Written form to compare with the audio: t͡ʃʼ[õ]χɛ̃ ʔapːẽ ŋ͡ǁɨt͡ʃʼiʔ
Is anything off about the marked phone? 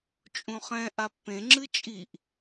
yes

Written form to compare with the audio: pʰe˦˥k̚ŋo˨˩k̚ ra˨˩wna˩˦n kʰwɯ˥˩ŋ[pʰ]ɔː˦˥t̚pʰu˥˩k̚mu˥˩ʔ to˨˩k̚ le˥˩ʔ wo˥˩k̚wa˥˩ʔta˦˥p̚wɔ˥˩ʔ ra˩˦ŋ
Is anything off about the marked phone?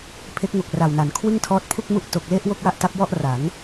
yes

